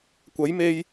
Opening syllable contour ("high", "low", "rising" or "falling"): rising